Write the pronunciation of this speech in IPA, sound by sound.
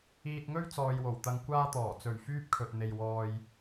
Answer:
iː˧ t̚ ŋ ɵ˥ ɥ t͡s ɔː˨ j w o˨˩ w t̪ ɐ˧ ŋ kʷ aː˥ t̪ ɔː˨˩ t͡s ɵ˨˩ ɥ f yː˥ p̚ kʰ ɵ˨ t̚ n̪ e˨ j w ɔː˧ j

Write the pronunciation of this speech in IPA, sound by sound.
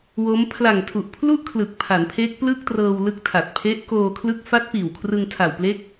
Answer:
w o˦˥ m pʰ l a˨˩ ŋ tʰ u˨˩ ʔ pʰ l u˥˩ ʔ kʰ l ɯ˨˩ k̚ pʰ a˩˦ n pʰ e˦˥ k̚ p l ɯ˥˩ k̚ t r ɤː˧ w l ɯ˦˥ k̚ tʰ a˨˩ t̚ pʰ e˦˥ ʔ k oː˧ kʰ l ɯ˦˥ k̚ f a˦˥ t̚ p iː˨˩ w kʰ r ɯ˧ ŋ tʰ a˨˩ w p l e˦˥ k̚

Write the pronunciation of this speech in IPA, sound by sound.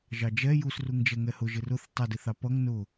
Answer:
ʒ ɑ d͡ʒ ɛ j u s r u ŋ d͡ʒ ɛ ŋ ɛ h ʊ ʒ ɪ r ʊ θ tˤ ʌ d ɪ θ ɑ p ʌ ŋ n ʊ

